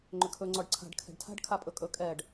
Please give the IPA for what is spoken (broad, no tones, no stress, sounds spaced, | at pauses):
ŋ͡ǃ ʏ kʰ ɵ ŋ͡ǀ ɔ ɖ ǀʰ a̤ ɖ kʰ ɛ̤ ɖ tʰ a̤ ɖ kʰ a pʼ ɵ kʼ ɵ kʼ ɛ ɖ